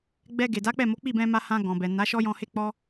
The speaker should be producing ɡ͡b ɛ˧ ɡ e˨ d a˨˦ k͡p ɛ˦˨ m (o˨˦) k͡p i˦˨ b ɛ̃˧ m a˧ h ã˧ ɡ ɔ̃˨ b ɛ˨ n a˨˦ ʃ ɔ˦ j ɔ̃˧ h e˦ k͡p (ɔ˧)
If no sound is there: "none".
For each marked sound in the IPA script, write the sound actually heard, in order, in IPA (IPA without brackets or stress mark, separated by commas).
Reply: o˨˦, ɔ˦